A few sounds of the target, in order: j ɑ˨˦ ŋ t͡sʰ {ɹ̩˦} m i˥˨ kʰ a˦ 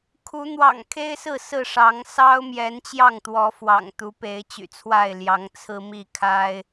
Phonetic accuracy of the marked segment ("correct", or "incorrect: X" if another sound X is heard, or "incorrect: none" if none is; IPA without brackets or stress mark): correct